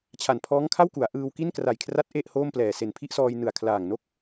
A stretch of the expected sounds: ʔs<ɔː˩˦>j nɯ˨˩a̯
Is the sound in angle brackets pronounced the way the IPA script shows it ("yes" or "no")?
no